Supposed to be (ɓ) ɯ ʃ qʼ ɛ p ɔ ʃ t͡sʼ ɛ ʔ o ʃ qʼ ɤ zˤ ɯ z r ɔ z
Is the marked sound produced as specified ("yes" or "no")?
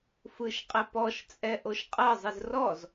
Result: no